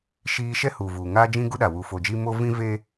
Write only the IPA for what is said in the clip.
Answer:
ʃ iː˦ ʃ ɛ˦ h u˨ v u˨ ŋ aː˦ d͡ʒ ĩ˦ ɡ u˦ ɗ a˨ w u˨ f o˨ d͡ʒ i˦ m o˦ v ĩ˦ v eː˦

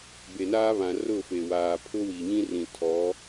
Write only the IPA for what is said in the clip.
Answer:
b e˨ n aː˦ β ã˨ r ʊ˦˨ f e˨ w aː˨ pʰ ʊ˦ w i˨ ɲ ĩ˦ r ĩ˨ tʰ ɔ˨˦

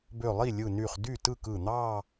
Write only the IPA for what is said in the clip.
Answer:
b ø˧˩ lˠ i˥˩ lʲ ɯ˧˩ n y˧˩ χ d y˥˩ t ɯ˥˩ k ɯ˧˩ n̪ ɑ˥˧

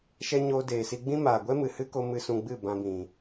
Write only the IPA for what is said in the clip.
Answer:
ʃ ɛ˧ ɲ oː˧ d eː˨ s i˧ ɡ͡b ĩ˦ m aː˨ ɡʷ ɛ˦ m ɨ˨ h ɨ˦ k o˧ m ɨ˨ s ũ˨ ɡ͡b ɨ˦˨ b ã˧ b ĩ˨

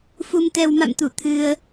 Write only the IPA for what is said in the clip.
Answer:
f u˧ m t̪ ɛ˧ w m a̰˧˨ m t̪ u˧˩ t̪ʰ ɨ˧ ə̯

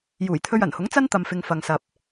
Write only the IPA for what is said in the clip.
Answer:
j uː˨˩ j t̪ʰ ɵ˧ ɥ ɐ˨˩ n h ʊ˨˥ ŋ t͡s ɐ˥ n t̪ ɐ˨ m f ɪ˨ ŋ f ɐ˨ ŋ s ɐ˨ p̚

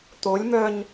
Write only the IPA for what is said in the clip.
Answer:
t̪ o lʲ m œ ɲ

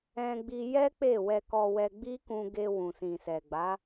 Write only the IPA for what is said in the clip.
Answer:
ɛ̃˧ ɡ͡b i˧ j ɛ˦ k͡p e˦˨ w ɛ˧ k ɔ˧ w ɛ˧ ɡ͡b i˦ k ũ˧ ɡ e˧ w ũ˨ s ĩ˨ s ɛ˨ ɡ͡b a˨˦

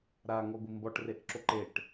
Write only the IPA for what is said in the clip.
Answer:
ɾ a ŋ ɔ ɡʷ i m b ɔ ʈ r e ʔ ǁ o ǃ e ʈ

